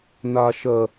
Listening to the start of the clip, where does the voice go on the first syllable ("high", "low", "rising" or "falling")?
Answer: low